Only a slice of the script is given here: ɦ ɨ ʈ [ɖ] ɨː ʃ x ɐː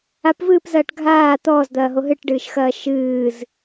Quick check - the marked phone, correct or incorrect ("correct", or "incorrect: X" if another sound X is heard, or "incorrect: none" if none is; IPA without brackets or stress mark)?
correct